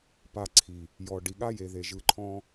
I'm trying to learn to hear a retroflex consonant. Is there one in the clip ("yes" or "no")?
yes